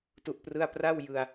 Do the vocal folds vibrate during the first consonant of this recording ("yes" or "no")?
no